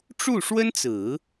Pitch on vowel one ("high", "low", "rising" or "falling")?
falling